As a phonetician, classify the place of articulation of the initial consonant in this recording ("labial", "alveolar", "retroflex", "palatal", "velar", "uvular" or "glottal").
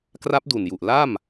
velar